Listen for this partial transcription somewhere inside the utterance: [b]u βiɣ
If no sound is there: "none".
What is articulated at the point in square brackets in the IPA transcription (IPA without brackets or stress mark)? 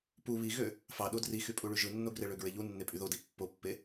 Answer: p